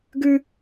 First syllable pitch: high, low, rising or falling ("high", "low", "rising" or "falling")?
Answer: high